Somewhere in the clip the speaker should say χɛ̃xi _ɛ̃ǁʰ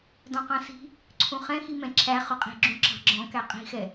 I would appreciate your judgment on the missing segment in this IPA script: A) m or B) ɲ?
A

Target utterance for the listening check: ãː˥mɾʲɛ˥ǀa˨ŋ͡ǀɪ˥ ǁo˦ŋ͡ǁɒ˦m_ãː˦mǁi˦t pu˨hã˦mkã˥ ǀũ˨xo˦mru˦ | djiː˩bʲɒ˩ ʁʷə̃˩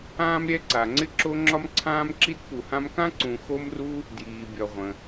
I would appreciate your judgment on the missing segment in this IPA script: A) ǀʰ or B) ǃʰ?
A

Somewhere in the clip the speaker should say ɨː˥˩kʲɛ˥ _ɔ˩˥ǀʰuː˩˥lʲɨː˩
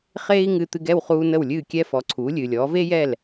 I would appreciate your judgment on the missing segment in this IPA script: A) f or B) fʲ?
A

